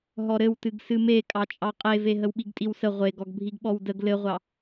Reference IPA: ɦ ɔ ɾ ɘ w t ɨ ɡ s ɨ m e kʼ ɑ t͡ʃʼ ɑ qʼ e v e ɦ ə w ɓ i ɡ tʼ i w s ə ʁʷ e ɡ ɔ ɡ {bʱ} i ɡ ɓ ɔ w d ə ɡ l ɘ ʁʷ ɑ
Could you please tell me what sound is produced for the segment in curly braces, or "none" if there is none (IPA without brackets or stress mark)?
bʱ